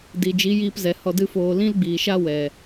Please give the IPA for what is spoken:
di˨d͡ʒi˨˦jiː˧pzɛ˨ hɔ˧dɨ˦foː˧ lĩ˦lɡ͡biː˨ʃa˦ wɛ˨

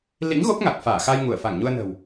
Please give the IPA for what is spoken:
lḭ˧˥ŋɣo˦˥p̚ŋa˨˩k̚ faː˧˩xa˧j ŋu˧˩ə̯fa˧˩ŋɲu˧ə̯nə̤˨˩w

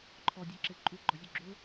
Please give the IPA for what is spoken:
ǃʰɔdʲɛǁe ǃʼuɡ͡ǃɔzʲu ɡ͡ǁʊ

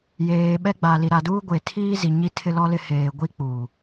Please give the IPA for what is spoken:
jeː˨ɓɛ˦ɡ͡ba˨ li˨ɾa˨duː˦ ɡʷe˨tʰiː˦ zi˨ɲi˦ tʰɪ˦lɔ˦lɪ˦ heː˨ɡʷi˦ k͡pu˨

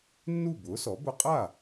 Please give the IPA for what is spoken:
nːu˥˩bʊː˩˥sɔ˩˥ bʊ˧qʼa˥˩

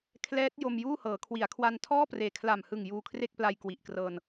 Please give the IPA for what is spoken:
kʰlɛː˦˥t̚ jo˧mjuː˥˩hɤː˩˦ kʰwi˩˦a̯kʰwa˧ntʰɔː˥˩preː˨˩ kʰla˨˩mhɯ˨˩ŋ juː˧kʰre˥˩k̚pla˧j kwi˨˩ʔkrɤː˧n

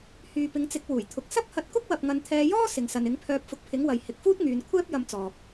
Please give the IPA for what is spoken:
hyː˨pɪ˨˧ŋt͡sɪ˨˥k̚ wuː˨˩jt̪ʰʊ˨k̚ sɐ˥p̚hɐ˧t̚kʊ˥k̚ wɐ˧p̚ŋɐ˧n t̪ʰɛː˧jɔː˥ sɪ˨ŋsɐ˨nɪ˨˥ŋpʰœː˧p̚ fʊ˧k̚pʰɪ˨˥ŋwɐ˨j hɪ˨k̚fuː˥t̚ ŋyː˨˧n kʷʰɛː˥p̚ jɐ˥mt͡sɔː˧k̚

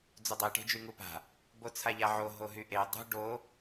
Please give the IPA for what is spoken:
d͡zudˤe ʈe̤d͡ʒyŋupa̤ | bot͡sʰaʎaʕo ɦoɦyʔe dˤṳ ɖo

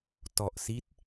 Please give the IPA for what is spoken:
tɔ˨˩ʔsi˦˥t̚

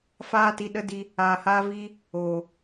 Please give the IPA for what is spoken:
faː˦ti˧ ɗə˦di˧ | aː˧haː˦viː˦ | oː˨

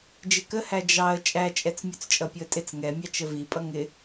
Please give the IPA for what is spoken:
d͡ʒɪkəhæ d͡ʒɑə̯ t͡ʃʼæt͡ʃʼɛt͡s mʲut͡st͡ʃʼʌpʲʊə̯tʼɪt͡s ŋɛmʲɑt͡ʃ əvipʼʌ ŋɪ

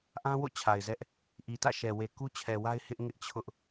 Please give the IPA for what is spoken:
ʔã˦wo̰˦˨ t͡ɕʰa˨ɪ̯zɛ˦ʔ | ʔi˨tä̰˦˨ʃɛ˨ we˨ku˦ t͡ɕʰɛ˨wa˦ɪ̯ hɪ˦ʔ ŋɪ˦ʔt͡ɕʰʊ˦ʔ

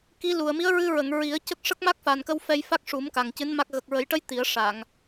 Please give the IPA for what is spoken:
ki˧˥lu˨˩ə̯ mi˧˥ə̯ɹɨ˧ɹə˨˩˨ŋ ɹi˨˩˦ə̯cə˦˥k̚ ʂə˦˥k̚ma˦˥k̚fa˨˩nkə˧w fɛ˧jfa˦˥k̚ʂu˨˩˦m ka˨˩ŋcɨ˧˥nma˦˥k̚ ɣə˨˩k̚ɹə˨˩˦jʈə˧˥j t̪i˨˩˦ə̯ʂa˨˩˨ŋ

